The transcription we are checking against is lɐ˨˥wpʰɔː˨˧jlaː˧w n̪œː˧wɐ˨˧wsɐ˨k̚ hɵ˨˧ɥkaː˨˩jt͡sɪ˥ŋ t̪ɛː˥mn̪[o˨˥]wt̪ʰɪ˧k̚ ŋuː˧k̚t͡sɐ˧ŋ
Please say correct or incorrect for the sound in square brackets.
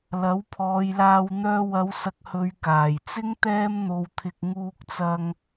incorrect